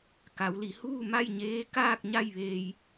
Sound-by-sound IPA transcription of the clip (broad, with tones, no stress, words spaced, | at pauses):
ka˩˧wli˩˧huː˥˨ ma˥˨jɲeː˧˥ kaː˥˨k̚ɲa˥˨jʋeː˧j